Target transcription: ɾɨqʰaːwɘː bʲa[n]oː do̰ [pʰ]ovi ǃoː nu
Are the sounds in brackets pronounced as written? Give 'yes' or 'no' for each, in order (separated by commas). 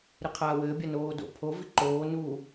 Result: yes, yes